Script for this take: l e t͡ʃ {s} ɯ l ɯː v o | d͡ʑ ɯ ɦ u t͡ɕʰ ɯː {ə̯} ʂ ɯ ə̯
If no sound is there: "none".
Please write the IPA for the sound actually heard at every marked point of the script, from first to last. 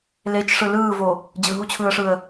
ʂ, ə̯

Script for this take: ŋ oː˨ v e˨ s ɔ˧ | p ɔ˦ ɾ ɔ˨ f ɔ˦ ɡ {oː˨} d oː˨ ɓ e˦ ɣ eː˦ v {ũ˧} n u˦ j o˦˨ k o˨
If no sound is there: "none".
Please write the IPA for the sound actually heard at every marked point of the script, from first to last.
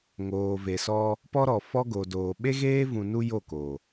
o˨, ũ˧

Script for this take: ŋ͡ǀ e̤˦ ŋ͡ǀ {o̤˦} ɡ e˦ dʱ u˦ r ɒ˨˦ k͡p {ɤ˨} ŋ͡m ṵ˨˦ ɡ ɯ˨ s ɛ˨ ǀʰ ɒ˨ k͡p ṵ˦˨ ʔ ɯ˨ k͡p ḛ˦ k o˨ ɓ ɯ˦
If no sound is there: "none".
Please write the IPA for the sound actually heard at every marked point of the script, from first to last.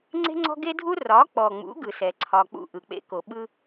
ɔ̤˦, ɔ˨

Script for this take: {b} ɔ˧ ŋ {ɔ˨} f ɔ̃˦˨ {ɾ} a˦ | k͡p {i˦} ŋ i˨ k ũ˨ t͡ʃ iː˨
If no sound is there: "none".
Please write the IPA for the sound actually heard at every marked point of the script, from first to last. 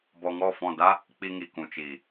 b, ɔ˦˨, d, i˧

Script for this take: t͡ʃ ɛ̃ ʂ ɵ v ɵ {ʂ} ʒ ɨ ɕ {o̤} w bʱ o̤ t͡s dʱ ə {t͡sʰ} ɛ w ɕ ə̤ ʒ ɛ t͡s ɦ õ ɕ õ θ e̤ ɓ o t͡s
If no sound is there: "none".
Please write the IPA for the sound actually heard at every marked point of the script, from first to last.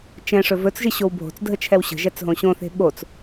t͡s, o, t͡ʃʰ

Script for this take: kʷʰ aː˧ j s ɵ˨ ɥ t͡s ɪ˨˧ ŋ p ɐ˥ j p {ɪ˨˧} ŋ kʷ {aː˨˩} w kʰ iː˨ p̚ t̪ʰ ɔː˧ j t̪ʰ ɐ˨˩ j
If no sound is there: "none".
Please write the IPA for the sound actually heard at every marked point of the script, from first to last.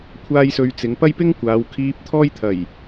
ɪ˥, aː˨˧

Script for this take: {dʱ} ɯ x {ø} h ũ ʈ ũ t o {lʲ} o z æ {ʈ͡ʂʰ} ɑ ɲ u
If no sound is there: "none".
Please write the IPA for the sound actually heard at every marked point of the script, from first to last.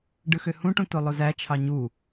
ɖ, ø, lˠ, t͡ʃʰ

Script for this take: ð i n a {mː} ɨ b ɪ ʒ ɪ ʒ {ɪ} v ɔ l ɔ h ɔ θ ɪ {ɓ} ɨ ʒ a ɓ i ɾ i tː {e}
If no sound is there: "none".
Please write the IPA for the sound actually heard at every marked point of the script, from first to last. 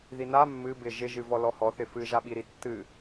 mː, ɨ, f, ɨ

